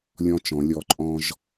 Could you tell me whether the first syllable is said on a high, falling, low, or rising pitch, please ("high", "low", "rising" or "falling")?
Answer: high